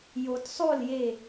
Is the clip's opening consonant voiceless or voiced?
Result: voiced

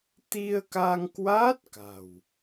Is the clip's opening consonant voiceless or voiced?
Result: voiceless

